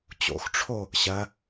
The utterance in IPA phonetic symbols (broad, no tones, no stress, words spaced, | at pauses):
t͡ɕo̰xʈ͡ʂʰo | ɕɐ